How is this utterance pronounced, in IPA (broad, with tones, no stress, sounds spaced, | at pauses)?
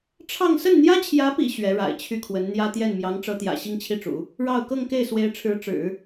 ʈ͡ʂʰ ɑ˥˧ ŋ s ə˥˩ n n̪ j ä˥ t͡ɕʰ j ä˧˥ p ḭ˨˩ ɕ ɥ ɛ˧˥ ɻ a̰˨˩ ɪ̯ t͡ɕʰ y˥˩ kʰ w ə˧˥ n n̪ j ä˥ t̪ j ɛ˥˩ n m j ɑ˧˥ ŋ ʈ͡ʂ ɤ˧˥ t̪ j ä̰˨˩ ɕ i˥˧ ŋ t͡ɕʰ i˥˩ ʈ͡ʂ ṵ˨˩˦ | ɻ ɑ˥˧ ʊ̯ k ɤ˥˧ ŋ k e˥˩ ɪ̯ s w e˧˥ ɪ̯ ʈ͡ʂʰ ɻ̩˧˥ ʈ͡ʂ ɻ̩˨˩˦